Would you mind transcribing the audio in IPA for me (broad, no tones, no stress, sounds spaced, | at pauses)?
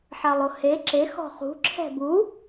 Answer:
ħ a lˠ o h e ǁ e x ɔ̤ χ ṳ ǁʰ ɛ̤ b u